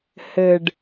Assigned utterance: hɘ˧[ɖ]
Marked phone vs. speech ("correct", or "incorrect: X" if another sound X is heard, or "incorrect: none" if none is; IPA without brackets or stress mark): correct